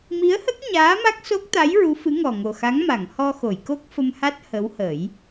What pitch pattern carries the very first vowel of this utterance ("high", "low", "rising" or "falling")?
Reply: rising